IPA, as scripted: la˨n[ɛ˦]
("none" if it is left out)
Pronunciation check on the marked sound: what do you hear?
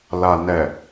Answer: ɛ˨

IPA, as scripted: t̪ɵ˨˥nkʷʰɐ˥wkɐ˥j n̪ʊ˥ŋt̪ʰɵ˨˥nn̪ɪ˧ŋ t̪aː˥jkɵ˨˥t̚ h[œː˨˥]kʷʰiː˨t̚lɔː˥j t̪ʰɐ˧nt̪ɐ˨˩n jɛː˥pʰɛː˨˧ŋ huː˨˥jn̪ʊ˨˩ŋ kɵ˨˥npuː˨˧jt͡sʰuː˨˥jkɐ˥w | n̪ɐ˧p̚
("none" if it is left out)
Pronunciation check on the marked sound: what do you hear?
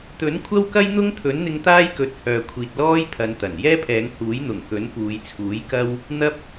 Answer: œː˨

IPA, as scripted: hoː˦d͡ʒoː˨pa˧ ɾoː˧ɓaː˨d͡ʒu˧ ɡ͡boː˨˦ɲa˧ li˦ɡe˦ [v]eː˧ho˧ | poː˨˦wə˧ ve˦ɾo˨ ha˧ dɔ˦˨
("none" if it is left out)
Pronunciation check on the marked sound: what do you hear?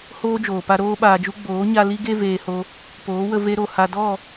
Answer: v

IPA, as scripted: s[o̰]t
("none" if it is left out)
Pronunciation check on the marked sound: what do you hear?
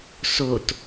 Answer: o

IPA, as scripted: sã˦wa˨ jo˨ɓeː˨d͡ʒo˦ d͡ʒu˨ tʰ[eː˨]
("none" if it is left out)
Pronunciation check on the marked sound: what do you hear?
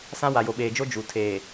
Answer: eː˨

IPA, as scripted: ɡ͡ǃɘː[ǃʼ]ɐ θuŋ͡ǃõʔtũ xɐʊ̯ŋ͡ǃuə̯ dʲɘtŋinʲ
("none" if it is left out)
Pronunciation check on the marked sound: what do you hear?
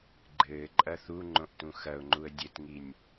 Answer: ǃʼ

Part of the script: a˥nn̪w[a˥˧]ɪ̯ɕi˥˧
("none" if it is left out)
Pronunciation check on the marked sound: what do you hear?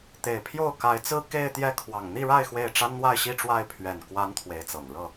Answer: a˥˧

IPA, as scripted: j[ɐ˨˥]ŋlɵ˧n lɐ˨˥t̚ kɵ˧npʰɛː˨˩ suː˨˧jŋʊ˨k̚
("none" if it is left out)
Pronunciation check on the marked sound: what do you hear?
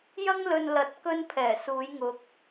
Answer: ɐ˥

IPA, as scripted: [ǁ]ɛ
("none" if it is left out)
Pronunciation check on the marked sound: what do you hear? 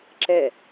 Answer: ǁ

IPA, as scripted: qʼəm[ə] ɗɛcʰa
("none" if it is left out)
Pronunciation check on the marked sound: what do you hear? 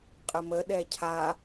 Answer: ə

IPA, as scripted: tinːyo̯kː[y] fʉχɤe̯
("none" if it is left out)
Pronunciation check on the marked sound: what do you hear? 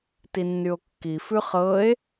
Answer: i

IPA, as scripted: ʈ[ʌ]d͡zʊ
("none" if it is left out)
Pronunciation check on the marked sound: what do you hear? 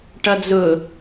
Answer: ʌ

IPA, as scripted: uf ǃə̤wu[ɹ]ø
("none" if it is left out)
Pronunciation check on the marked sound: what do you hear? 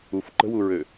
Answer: ɹ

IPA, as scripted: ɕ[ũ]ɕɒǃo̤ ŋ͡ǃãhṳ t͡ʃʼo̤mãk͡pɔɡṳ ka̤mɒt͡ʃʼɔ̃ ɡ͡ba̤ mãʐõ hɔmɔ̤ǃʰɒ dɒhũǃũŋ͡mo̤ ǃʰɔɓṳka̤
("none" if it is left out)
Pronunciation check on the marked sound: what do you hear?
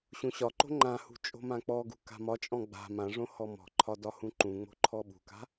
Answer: ũ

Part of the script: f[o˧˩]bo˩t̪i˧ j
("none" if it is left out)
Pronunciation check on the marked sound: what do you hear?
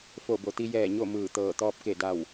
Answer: o˧˩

